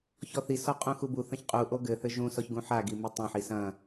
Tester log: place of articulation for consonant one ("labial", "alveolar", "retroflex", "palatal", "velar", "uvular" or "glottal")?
palatal